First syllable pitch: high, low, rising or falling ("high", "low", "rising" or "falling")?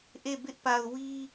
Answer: falling